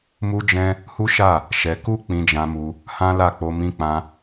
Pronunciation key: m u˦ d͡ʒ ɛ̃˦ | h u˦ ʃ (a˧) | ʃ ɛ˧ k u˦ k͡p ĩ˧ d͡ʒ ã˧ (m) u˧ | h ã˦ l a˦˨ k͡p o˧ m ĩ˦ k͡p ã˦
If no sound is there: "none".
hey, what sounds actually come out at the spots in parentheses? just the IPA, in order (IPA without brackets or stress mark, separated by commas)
a˦˨, m